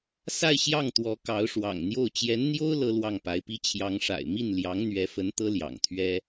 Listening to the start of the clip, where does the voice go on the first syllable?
falling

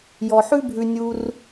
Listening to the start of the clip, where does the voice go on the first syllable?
low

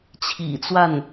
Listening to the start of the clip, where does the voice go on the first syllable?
low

